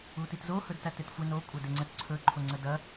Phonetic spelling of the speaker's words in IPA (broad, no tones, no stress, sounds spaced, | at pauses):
u t i t z o h ɵ d t æ t ɪ t xʷ ɪ n o kʷʼ ɐ d ɪ ŋ͡ǀ ə t ǀʰ ɵ ǃʰ o ŋ͡ǀ ə d ɐ